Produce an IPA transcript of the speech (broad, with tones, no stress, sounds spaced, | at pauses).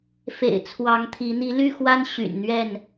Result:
f ḛ˨˩ ɪ̯ t͡sʰ w ɑ˨˦ ŋ t̪ʰ i˨˦ n̪ i˨˦ l y˥˨ x w a˦ n ɕ y̰˨˩ n n̪ ɥ ɛ˥˨ n